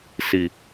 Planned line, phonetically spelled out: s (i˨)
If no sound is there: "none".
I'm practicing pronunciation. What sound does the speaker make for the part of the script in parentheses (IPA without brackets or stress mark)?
i˨